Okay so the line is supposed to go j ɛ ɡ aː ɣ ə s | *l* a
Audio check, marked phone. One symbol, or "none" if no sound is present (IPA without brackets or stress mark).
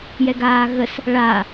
ɭ